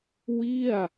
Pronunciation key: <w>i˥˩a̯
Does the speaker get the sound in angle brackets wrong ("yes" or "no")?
no